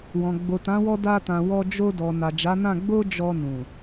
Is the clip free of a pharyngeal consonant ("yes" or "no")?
yes